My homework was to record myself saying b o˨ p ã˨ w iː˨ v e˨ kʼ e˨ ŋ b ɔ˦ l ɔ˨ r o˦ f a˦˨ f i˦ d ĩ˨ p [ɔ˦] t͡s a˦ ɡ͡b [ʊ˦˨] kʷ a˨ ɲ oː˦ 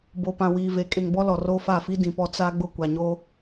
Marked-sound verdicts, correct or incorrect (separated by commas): correct, correct